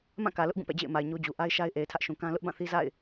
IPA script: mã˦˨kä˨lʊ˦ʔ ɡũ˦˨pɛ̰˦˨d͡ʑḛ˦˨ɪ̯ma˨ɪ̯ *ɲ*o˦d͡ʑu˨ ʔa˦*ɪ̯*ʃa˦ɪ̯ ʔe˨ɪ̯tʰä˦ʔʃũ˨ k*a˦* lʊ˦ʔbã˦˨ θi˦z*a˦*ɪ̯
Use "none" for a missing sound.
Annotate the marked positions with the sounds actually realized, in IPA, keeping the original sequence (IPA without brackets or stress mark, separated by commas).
ɲ, ɪ̯, ã˦, a̰˦˨